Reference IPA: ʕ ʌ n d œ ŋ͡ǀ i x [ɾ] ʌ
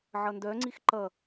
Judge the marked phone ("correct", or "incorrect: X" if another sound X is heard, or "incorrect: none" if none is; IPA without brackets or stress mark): incorrect: ǃ